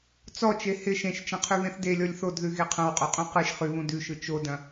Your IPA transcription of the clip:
t͡s ɔ t͡ʃ e h ɪ ʃ ẽ ʃ t͡ʃ ɐ̃ qʰ ʉ β ẽ θ d e lʲ ɔ lʲ θ o d ð ʉ ɣ e qʰ ɐ̃ w qʼ o qʼ ũ q ɯ ʃ χ ʉ β ũ d ʉ ʃ ɯ t͡ʃ o d ɐ̃

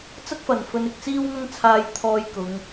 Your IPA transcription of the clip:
t͡s ɐ˥ k̚ f ɐ˨˩ n f ɵ˨˧ n ɪ˨ k̚ t͡s iː˥ w ŋ ɐ˥ ŋ t͡sʰ aː˧ j t̪ʰ ɔː˧ j k ʊ˨˧ ŋ

